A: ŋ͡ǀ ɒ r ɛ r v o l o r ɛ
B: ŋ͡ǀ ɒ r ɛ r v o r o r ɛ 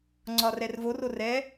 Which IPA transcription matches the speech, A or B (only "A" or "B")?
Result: B